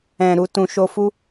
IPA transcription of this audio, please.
ɛ̃˨ ɾ u˨ t ũ˨ ʃ o˧ f u˦

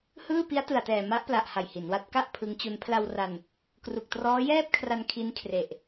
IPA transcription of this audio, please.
h ɯː˥˩ p i˦˥ a̯ t ɯ˨˩ a̯ t ɛː˨˩ m a˦˥ ʔ p l a˨˩ ʔ h a˨˩ j h i˩˦ n w a˦˥ t̚ k a˥˩ ʔ pʰ ɯ˦˥ ŋ t͡ɕ u˦˥ n pʰ l a˧ w r a˧ n | k r u˨˩ k̚ t r ɔː˦˥ j ɛː˥˩ p̚ kʰ r a˧ n kʰ i˦˥ n kʰ r e˨˩ ʔ

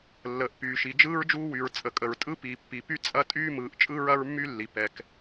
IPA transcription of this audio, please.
lː əː˩ ʔ p yː˩ ʃ i˩ d͡ʒ ɯː˥ ɹ d͡ʒ uː˥ w y˩ ɹ t͡sʼ ə˩ kʼ ə˩ ɹ tʼ ɯ˥ p iː˩ pː i˩ p y˥ t͡sʼ ɐ˥ tʼ yː˥ m ɯː˩ ʔ t͡ʃʼ ɯ˥ ɹ ɐ˥ ɹ mː y˥ lː i˩ p ɛ˩ k

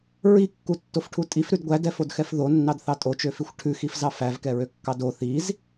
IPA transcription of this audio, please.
ɹ i kː u tː o f ʈʰ u tʼ i f ɾ ʉ d ɡʷ æ d ɛ f o d x ɛ f ð o nː ɑ d θ ɑ tʼ o t͡ʃ ø f i xʷ ʈʰ ʉ x i f z ɑ f æ v k ɛ ɹ ø kː ɑ d o θ i z

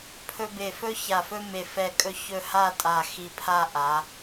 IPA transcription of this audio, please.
pʰ ɵ˧ b e˧˩ f ɵ˥ ç a˧˩ f ɵ˥ m e˧˩ f ɛ˧˩ kʼ ɵ˧ ç ɵ˧ h a˥˧ tʼ a˧˩ x i˧ pʰ a˥˧ ʔ a˩˧

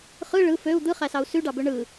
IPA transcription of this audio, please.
χ ɯ ɭ ɯ f ø u̯ d̪ ɯ χ æ s ɑ u̯ s y ɖ ɑ b ø ɳ ɯ

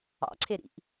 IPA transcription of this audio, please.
ɑ̰ ǀʰ e ɾ ḭ ʔ

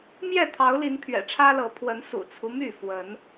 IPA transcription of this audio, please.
m j ɛ˥˨ t̪ʰ ɑ˨˦ ʊ̯ l i˨˦ n pʰ ɥ ɛ̰˨˩ ʈ͡ʂʰ ä˦ l ɤ˨˦ pʰ w ə˨˦ n s ṵ˨˩ t͡sʰ u˦ m y˥˨ f w ə˨˦ n

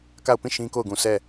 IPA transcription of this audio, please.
k a˦˨ ʊ̯ p ĩ˦˨ ʃ ĩ˦ k o˦˨ ʊ̯ ɡ ũ˨ s ɛ˦˨

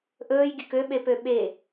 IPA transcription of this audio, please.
ʔ ɵː j ɡʲ ɵ k ø ɓ e p ø ɓ e

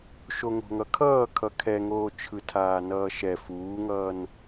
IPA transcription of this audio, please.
ʃ o ŋ o̤ ŋ ʌ kʰ ʌː kʰ ʌ kʰ ɛ ŋ oː t͡ʃʰ ɯ tʰ aː n ʌː ʃ ɛ f uː ŋ ʌː n

